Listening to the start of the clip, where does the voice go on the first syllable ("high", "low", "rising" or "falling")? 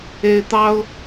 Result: high